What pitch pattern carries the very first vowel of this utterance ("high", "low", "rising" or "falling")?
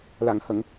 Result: low